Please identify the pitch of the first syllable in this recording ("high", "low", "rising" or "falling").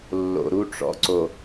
low